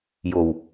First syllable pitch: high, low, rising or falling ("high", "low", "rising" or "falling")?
low